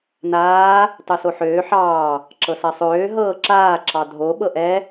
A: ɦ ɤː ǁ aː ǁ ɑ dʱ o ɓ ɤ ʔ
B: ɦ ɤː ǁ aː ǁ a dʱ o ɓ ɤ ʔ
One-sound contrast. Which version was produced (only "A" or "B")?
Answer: A